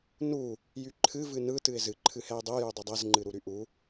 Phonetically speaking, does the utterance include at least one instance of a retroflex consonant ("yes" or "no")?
no